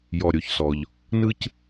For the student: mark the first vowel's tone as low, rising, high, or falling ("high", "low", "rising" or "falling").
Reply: low